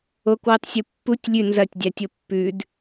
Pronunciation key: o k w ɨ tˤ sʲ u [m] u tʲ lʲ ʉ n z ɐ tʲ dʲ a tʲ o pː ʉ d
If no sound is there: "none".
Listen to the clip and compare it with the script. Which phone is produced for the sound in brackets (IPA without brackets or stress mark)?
pː